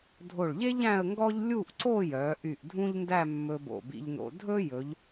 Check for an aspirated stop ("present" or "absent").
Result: absent